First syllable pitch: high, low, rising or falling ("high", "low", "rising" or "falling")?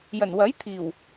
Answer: low